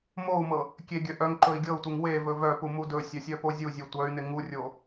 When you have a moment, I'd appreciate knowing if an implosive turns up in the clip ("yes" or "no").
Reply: no